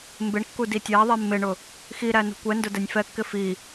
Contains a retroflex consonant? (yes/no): yes